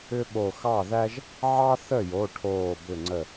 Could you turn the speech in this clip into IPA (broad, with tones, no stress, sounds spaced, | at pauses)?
ʏ˥ ɓ o˧˩ x ɑ˥˩ ð æ˥ ʒ | ʕ ɑ˥ θ ə˥˩ j o˩˧˩ ʈʰ oː˧˩ b ʏ˧˩ ŋ͡ǀ ə˧˩